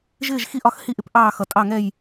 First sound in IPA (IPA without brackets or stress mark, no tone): ʒ